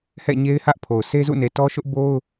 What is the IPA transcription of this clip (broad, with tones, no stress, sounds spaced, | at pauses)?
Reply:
h ɛ̰˦˨ ɲ e˦ ɪ̯ h ä˦ ʔ pʰ o˨ ʊ̯ sʰ e˦ z ṵ˦˨ n e˨ t ɔ˦ ʃ ʊ˦ ʔ b o˦ ʊ̯